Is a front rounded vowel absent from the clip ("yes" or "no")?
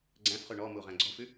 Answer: yes